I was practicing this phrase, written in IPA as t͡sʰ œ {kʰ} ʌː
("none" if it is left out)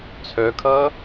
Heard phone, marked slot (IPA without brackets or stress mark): kʰ